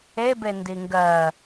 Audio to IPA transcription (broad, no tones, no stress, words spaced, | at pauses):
ebe ndiŋɡɜ